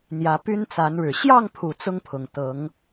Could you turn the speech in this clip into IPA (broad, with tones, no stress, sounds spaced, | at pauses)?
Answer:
n̪ j ä˨˦ p y˦ n t͡s a˨˦ n ɻ ɻ̩˨˩ ɕ j ɑ˥˨ ŋ pʰ u˨˩ t͡s ʊ˦ ŋ pʰ ʊ˨˩ ŋ t̪ ɤ˨˦ ŋ